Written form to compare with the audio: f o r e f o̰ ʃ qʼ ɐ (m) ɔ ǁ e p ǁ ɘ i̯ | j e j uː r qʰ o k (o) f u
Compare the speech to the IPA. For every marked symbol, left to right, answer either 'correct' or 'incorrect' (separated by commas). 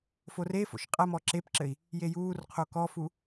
correct, incorrect